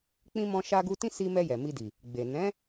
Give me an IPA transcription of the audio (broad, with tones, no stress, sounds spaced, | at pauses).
k͡p ĩ˦ m ɔ̃˧ ʃ a˧ ɡ u˧ t ĩ˦ s i˧ m ɛ˧ j ɛ˨ m i˧ d i˨ | ɡ͡b e˨ n ɛ̃˨˦